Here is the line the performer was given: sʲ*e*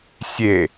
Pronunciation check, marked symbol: correct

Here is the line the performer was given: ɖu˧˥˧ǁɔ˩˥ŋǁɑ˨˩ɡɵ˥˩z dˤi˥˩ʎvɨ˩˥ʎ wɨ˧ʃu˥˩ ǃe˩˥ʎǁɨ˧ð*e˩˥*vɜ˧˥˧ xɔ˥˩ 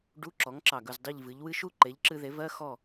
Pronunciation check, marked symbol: correct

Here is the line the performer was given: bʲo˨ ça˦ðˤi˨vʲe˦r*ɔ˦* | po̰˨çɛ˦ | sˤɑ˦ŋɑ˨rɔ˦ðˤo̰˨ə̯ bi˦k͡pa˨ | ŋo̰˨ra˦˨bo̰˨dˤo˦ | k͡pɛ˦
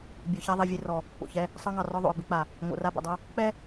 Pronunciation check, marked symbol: incorrect: ɔ˨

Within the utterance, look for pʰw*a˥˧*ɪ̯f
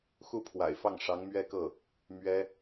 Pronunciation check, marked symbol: incorrect: a̰˨˩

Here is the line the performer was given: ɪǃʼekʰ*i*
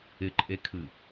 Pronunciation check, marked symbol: incorrect: ɨ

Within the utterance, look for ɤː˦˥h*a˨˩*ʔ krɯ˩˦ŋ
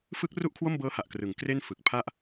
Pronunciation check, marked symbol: correct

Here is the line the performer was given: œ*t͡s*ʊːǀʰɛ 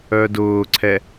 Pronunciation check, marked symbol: incorrect: d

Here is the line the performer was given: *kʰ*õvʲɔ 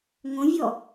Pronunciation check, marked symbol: incorrect: ŋ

